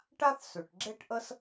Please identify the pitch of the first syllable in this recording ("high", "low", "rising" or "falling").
high